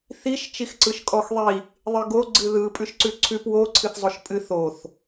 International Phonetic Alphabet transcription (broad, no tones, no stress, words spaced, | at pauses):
θiʃ t͡ʃixǀɯʃkʼɔxðˤi | ðˤɨɡo ɡ͡ǀɨðɯ pʼʉʃǀʉǀʰʉp wo ǀʰɨθzˤoʃpʼɨ θoθ